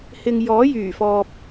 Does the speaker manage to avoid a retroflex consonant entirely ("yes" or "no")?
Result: yes